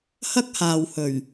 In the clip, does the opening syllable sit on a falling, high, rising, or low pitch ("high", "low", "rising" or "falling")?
high